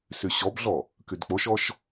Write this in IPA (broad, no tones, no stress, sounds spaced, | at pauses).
s y ɕ ɔ b ɮ ɔ | k y d k͡p o ʃ ɔ ʃ